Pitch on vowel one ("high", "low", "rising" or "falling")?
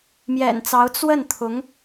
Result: low